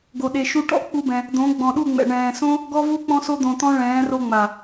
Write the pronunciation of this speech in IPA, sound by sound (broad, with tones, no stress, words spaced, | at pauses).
ɡo˨ɗe˨ ʃu˧ʈɔ̰˦ k͡pu˦bɛ̃˧ | d̪õ˨˦ ɡ͡bɔ̃˨ɗu˦˨ŋ͡mɛ̰˨ ɳɛ̃ː˨sõ˦ | ɡɔ˦vu˦ k͡pɔ̃˧so˧d̪õ˨t̪ɔ̃˧ ɭɛ̃ː˨˦ro˧ŋ͡ma˨